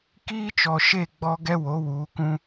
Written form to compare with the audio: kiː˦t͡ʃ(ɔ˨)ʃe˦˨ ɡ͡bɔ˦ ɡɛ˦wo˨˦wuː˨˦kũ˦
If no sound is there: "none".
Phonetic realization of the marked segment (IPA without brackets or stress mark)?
ɔ˨